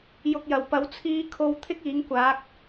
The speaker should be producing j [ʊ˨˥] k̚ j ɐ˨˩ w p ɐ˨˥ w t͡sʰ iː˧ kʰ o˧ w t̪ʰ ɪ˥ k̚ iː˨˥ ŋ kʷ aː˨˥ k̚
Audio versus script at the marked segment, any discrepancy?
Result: yes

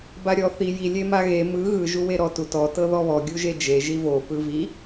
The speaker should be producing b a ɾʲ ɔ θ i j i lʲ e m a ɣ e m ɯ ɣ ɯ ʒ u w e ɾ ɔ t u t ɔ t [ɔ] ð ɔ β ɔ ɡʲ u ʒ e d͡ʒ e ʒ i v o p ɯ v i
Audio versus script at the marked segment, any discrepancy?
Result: yes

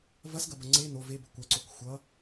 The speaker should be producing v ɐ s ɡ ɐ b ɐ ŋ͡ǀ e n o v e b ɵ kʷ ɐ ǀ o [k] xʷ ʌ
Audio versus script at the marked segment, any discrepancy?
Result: no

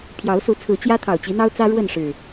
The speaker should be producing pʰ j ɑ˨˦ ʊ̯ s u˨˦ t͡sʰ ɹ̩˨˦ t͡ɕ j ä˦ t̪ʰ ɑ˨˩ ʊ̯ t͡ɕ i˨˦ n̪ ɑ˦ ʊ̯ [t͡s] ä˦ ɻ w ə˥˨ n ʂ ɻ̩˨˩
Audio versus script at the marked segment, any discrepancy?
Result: no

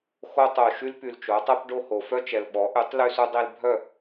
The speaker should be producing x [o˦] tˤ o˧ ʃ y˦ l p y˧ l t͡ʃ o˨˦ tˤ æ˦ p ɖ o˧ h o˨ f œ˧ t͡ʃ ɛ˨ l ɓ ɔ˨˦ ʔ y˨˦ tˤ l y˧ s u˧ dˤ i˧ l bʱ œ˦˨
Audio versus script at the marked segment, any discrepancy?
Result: no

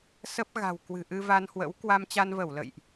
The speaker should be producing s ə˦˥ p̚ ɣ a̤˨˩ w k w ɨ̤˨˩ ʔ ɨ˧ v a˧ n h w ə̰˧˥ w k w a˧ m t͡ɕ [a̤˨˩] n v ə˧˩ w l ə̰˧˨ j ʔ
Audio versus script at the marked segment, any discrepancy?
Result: yes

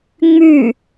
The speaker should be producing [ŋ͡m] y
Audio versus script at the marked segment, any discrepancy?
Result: no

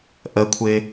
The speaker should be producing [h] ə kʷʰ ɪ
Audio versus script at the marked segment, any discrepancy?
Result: yes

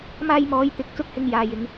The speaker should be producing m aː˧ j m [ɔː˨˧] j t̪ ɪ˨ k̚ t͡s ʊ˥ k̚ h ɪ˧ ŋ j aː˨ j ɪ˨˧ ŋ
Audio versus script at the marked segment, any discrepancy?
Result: no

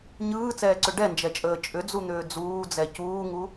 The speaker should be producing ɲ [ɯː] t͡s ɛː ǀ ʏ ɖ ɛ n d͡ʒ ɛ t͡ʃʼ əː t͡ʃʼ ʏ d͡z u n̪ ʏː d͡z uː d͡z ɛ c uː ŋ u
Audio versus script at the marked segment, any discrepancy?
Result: no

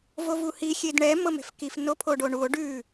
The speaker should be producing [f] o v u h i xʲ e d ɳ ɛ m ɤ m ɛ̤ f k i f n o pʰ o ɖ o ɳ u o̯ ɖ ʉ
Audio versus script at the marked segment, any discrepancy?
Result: yes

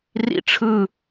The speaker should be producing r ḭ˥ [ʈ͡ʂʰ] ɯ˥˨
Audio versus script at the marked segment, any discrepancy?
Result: no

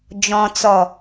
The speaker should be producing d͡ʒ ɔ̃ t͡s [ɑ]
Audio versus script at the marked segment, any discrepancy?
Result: yes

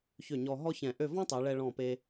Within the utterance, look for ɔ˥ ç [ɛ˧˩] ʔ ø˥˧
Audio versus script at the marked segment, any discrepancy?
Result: yes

